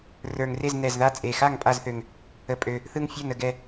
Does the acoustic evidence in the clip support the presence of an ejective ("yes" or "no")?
yes